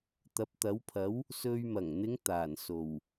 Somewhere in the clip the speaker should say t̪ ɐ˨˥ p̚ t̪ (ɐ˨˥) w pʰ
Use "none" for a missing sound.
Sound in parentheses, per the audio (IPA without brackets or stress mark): ɐ˨˥